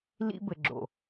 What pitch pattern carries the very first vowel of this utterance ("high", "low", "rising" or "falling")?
high